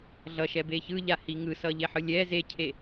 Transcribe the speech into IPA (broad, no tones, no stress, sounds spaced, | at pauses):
ɮ ʌ ʃ ɛ b e ç ɯ ʎ a h i ŋ ɯ s ʌ ʎ e ħ ɯ lʲ ɛ z e cʰ e